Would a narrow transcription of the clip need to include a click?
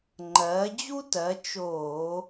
yes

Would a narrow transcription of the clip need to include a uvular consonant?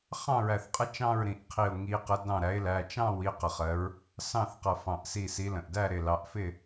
yes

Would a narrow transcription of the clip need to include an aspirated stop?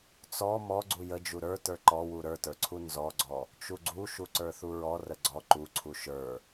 yes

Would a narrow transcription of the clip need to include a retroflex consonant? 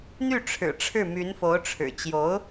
yes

